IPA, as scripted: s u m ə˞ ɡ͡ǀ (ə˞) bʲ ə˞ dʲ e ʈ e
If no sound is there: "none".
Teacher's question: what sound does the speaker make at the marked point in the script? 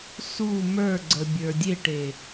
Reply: ə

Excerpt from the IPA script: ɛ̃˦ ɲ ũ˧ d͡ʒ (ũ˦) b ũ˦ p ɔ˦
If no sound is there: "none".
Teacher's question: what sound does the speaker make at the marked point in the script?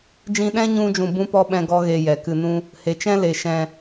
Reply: ũ˨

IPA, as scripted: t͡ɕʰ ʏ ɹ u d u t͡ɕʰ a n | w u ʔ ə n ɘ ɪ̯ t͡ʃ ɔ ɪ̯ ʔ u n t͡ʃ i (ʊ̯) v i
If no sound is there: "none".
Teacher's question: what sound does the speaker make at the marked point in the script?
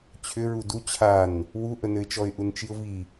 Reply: ʊ̯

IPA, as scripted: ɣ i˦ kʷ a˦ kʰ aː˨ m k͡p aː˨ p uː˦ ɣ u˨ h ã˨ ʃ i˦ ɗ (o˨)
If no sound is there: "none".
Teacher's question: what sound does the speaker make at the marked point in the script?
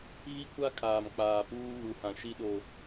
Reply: o˦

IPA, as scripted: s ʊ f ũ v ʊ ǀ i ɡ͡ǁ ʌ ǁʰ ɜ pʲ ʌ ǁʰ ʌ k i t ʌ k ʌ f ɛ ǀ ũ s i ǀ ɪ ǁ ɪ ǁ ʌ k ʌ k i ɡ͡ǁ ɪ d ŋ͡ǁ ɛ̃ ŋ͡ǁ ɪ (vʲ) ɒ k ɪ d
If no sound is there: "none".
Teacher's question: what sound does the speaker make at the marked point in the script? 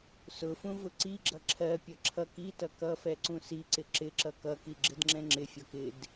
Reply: fʲ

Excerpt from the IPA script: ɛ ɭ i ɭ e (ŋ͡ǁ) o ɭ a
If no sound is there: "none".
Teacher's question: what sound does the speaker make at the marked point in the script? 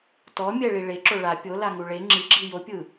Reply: ǁ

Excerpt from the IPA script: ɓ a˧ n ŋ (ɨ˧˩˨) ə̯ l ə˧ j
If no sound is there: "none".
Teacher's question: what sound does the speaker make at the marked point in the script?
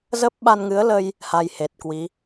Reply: ɨ˨˦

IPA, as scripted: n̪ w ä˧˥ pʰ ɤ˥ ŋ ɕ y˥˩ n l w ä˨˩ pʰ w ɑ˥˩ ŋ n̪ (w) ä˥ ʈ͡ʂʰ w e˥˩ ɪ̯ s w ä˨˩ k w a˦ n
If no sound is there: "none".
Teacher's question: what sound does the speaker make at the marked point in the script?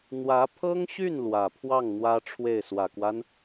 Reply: w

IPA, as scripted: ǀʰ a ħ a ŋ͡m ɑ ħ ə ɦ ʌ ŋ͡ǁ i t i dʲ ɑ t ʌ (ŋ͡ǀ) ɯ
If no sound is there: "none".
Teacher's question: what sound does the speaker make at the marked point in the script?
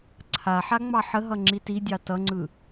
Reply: ŋ͡ǀ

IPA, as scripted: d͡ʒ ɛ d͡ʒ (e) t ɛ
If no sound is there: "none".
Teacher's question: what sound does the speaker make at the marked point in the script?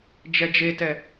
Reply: e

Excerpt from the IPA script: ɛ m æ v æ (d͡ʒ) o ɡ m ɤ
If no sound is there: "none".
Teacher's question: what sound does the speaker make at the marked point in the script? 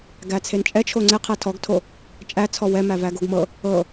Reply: ɡ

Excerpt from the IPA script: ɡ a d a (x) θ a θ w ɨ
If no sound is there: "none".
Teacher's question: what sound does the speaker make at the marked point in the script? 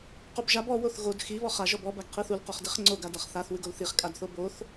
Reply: χ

